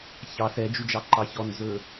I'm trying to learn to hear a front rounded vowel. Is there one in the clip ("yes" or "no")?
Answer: yes